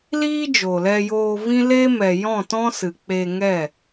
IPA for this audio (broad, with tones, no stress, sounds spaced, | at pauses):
l iː˦ d͡ʒ o˨ l ɛ˧ j oː˧ v ĩ˦ l eː˦ m ɛ˨ j ɔ̃˦˨ t ɔ̃˦ s ɨ˨ k͡p e˧ ŋ ɛ˦˨